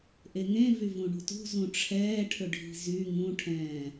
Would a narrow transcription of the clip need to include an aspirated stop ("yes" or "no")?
yes